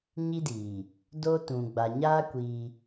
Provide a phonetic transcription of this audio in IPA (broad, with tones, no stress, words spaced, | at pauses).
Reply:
ɲi˦diː˨ | do˦ tũ˨ɡ͡ba˨ ɲaː˦ kʷiː˦